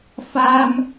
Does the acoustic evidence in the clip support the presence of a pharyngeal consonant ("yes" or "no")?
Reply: no